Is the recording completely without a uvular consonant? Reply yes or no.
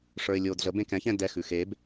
yes